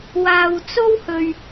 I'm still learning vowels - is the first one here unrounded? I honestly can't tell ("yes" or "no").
yes